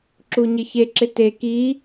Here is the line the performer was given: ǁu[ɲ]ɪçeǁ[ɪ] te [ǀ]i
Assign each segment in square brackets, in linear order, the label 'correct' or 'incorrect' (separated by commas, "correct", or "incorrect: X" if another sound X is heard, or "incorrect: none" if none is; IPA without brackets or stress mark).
correct, correct, incorrect: k